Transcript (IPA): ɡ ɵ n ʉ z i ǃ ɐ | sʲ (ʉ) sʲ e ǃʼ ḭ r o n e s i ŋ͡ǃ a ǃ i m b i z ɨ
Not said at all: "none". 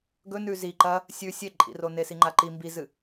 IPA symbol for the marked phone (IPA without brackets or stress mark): ʉ